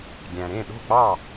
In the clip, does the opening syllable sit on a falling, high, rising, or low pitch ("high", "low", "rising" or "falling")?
low